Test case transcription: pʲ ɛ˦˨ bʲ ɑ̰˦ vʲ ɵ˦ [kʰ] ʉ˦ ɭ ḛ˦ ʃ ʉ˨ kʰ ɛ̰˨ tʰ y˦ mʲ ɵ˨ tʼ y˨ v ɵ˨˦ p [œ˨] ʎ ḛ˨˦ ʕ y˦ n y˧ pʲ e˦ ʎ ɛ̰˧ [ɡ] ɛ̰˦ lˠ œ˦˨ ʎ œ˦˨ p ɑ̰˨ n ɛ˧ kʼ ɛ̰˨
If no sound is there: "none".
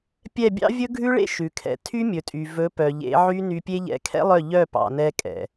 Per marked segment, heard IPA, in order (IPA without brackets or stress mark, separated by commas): ɡʱ, œ˨, kʰ